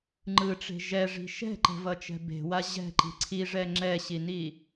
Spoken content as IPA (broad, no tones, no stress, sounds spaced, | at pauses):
ŋ͡ǃ ɯ ʈ͡ʂ e̤ ʒ ɛ ʐ i̤ ʃ ɛ̤ ǃ ɛ̤ v ʌ t͡ʃ ɛ̤ b e̤ w a ʑ ɛ̤ ǃ i̤ ǀʰ i ʐ ɛ ŋ͡ǁ ɛ ɕ i n i